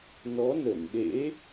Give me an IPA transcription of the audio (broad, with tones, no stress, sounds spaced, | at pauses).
n ɔ˨˦ n ə˧˩ n ɗ ḛ˧˥